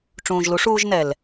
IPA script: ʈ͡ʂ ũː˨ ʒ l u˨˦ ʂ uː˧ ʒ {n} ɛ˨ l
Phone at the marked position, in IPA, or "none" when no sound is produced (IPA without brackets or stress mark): n